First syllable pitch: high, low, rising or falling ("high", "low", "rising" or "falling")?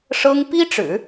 high